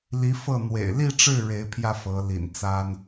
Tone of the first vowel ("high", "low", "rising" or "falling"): rising